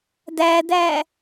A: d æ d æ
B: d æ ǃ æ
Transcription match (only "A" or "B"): A